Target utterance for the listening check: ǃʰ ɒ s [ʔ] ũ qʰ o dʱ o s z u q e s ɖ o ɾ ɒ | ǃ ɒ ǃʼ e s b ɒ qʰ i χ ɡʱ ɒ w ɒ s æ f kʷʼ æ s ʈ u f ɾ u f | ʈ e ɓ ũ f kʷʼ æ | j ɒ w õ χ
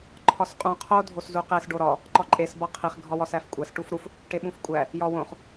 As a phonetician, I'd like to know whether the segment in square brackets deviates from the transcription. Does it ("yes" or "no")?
yes